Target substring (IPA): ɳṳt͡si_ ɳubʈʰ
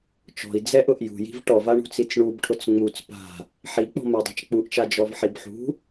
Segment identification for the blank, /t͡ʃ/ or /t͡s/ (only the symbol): t͡s